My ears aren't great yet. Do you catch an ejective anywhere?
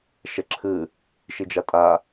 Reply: yes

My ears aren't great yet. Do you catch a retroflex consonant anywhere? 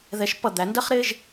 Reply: no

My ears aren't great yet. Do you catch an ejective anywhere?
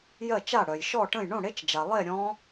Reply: no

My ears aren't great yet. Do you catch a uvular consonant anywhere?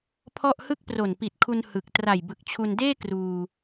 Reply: no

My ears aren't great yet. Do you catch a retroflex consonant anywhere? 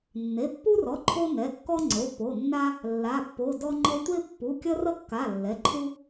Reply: no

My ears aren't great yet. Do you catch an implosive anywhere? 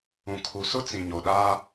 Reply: yes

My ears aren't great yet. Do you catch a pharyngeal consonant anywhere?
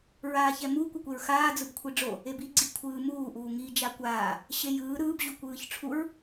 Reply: no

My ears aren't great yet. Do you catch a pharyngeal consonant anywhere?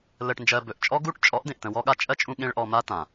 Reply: no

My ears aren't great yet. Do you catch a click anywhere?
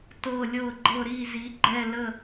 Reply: yes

